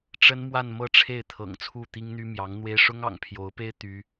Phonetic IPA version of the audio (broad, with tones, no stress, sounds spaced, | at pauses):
ʈ͡ʂ ə˥ n m w a˥˧ n m ɤ˥˧ ʈ͡ʂʰ e˥˩ ɪ̯ t̪ʰ ɤ̰˨˩ ŋ t͡sʰ u˥˩ t̪ i˥ ŋ n̪ y˥ m j ɑ˧˥ ŋ n̪ w e˥ ɪ̯ ʂ ʊ˥ ŋ ɑ̰˨˩ ŋ pʰ j o˧˥ ʊ̯ p e˥ ɪ̯ t̪ y˥